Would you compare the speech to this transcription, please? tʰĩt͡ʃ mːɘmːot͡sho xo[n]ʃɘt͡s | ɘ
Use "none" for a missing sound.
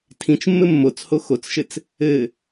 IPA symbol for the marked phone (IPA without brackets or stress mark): t͡s